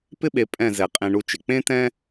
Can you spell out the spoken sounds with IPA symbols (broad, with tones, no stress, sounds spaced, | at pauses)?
p ɪ˥ ɓ e˧ pʼ ɛ̃˥˧ z ɛ˧˩ qʼ ẽ˧ ɳ u˧ t͡ʃ ɪ˩˧ k͡p ẽ˥ t ɛ̃˥